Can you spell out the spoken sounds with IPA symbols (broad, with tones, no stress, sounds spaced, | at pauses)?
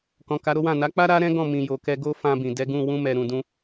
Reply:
k ɔ̃˨ k a˨˦ ɾ o˦ w ã˦˨ n a˨˦ k͡p a˦ ɾ a˦ ɾ ɛ̃˦ ɡ ɔ̃˦˨ m ĩ˨ j o˨ k ɛ˧ ɡ o˦ f ã˧ b ĩ˨ d ɛ˨˦ ɡ ũ˦˨ w ũ˧ m ɛ˨ ɾ ũ˨ d ũ˧